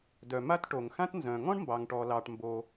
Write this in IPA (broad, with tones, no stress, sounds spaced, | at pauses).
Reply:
d œ˩ m a˥ t ʈ o˩ ŋ x ã˥ t n z œ̃˩ ŋ ɔ̃˥ ɳ m b ɑ˩ ŋ ʈ ɔ˩ l ɑ˩ ʈ m b o˩